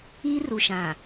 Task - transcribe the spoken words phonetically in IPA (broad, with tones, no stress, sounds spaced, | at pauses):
iː˦ r u˨ ʃ ã˨